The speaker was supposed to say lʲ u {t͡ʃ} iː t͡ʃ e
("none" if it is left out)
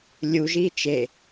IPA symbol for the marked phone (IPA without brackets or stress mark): ʒ